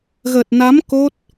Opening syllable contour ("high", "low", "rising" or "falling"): low